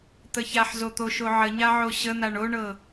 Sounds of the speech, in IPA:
t̪ ə ç a ħ z o t̪ o ʃ o ʕ ə ɲ a ʕ o ɕ ə n̪ a ɳ o ɳ ɤ

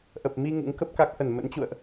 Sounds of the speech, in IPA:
ʔ ə˨˩ p̚ m i˧ ŋ ṵ˧˥ ŋ k ə˦˥ p̚ k a˦˥ k̚ h ə˧˩ n m ə̰˧˥ n t͡ɕ ṵ˧˨ ə̯ ʔ

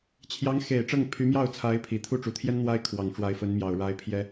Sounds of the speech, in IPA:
t͡ɕʰ j ɑ˧˥ ŋ x e˨˩ ɪ̯ ʈ͡ʂ ɤ˥˩ ŋ pʰ y˧˥ m j ɑ˥˩ ʊ̯ t͡sʰ a˧˥ ɪ̯ pʰ i˨˩ t̪ʰ u˥˩ ʈ͡ʂ u˨˩ t̪ʰ j ɛ˥ n n̪ w a˥ ɪ̯ kʰ w ɑ˨˩ ŋ ʈ͡ʂ w a˧˥ ɪ̯ f ə˧˥ n m j ɑ˨˩ ʊ̯ ɻ a˧˥ ɪ̯ pʰ j ɛ˥

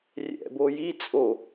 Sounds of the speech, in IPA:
rʲ ɛ̰ b o j i t͡sʼ o

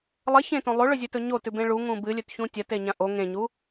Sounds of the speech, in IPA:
lˠ ɐ ç ẽ t õ lˠ o ɭ ɵ zʲ ɵ t ɵ ɲ o t ʉ b ẽ ɭ u ŋ ũ b ɨ lʲ ɵ t ç ũ tʲ ɐ t e ɲ ã ʔ o ŋ ẽ ɲ u

